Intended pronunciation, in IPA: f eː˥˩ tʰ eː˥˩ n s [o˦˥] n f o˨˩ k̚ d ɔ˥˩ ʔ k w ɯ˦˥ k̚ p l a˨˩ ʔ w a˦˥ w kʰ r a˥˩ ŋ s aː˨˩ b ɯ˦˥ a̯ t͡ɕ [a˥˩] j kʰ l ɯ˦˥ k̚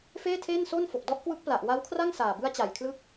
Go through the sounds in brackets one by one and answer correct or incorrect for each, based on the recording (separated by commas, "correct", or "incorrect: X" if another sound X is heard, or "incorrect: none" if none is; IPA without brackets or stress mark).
incorrect: o˥˩, incorrect: a˨˩